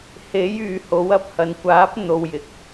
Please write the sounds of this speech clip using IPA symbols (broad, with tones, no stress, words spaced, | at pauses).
he˨˥j yː˨ho˨˥wɐ˧p̚ hɐ˨nkʷaː˨˥p̚ n̪o˨wjɪ˨˥k̚